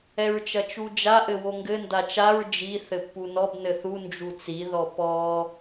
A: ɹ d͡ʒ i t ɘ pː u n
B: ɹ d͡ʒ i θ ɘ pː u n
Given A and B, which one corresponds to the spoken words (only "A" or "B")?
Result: B